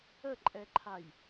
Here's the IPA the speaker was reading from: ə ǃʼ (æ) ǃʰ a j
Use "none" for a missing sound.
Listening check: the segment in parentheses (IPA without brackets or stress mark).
ɛ